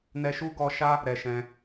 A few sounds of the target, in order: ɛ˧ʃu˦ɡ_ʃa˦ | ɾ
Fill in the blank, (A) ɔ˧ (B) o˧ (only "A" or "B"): A